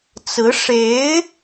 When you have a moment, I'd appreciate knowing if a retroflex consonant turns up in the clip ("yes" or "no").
yes